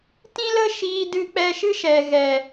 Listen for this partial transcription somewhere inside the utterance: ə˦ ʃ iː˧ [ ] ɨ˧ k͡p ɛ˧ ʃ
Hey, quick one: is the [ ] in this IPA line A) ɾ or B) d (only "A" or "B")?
B